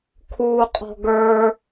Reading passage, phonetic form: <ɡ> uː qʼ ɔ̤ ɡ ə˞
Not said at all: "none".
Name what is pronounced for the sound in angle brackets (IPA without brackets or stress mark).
kʰ